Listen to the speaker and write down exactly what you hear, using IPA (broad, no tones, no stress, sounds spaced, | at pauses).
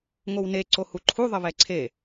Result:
ŋ o w n e ǀ o h u ǃʰ u ðˤ ə β ɛ ǀʰ e